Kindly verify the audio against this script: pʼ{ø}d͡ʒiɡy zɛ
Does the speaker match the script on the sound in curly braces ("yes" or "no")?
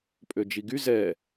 yes